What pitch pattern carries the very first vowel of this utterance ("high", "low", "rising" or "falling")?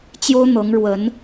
high